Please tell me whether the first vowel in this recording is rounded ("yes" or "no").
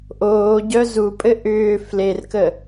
yes